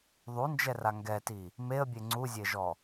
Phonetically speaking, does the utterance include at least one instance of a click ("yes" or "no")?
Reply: yes